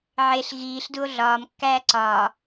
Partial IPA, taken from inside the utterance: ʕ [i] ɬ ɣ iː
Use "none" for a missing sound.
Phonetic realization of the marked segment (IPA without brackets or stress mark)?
e